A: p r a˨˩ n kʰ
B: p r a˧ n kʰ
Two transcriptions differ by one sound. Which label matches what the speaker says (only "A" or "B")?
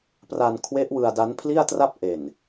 B